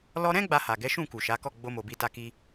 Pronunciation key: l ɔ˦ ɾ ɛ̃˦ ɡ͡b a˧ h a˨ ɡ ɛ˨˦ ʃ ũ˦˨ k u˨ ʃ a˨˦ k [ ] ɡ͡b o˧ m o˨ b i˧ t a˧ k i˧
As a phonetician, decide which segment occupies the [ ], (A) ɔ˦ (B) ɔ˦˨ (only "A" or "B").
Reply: B